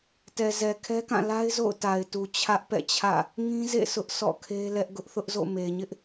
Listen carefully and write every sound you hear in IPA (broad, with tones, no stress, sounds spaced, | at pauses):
t ɛ˨ z ɛ˨ kʰ ɛ˦ k ã˦˨ l a˦ ɪ̯ z o̰˦˨ ʊ̯ t a˨ ɪ̯ t u˨ t͡ɕʰ ä˦ ʔ p ɛ̰˦˨ t͡ɕʰ ä̰˦˨ | ŋ ĩ˦ z ḛ˦˨ sʰ ʊ˦ ʔ sʰ ɔ̰˦˨ kʰ e˦ l ɛ˦ ʔ ɡ ʊ˦ ʔ θ ʊ˦ ʔ z o̰˦˨ m e˨ ɲ ɪ˦ ʔ